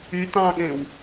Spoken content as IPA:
y t ɑ̃ ɠ ẽ w

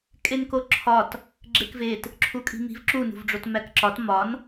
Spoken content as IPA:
kʼ e n k o ǁʰ ɒ t | ɡ͡ǁ e k v e t | ǁʰ u kʼ i̤ m i̤ v ǁ u n ṳ v ɖ͡ʐ o t m æ k ǁ ɒ t m ɒ n

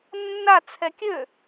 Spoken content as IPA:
nː a t͡sʰ ɛ kʲ ø

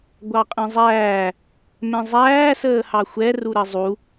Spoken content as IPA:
ɡʷ ɑ qʼ ɛ̃ zˤ æː | m ɛ̃ zˤ æː s əː h ɑ xʷ ɛ r u ɾ ə zˤ u

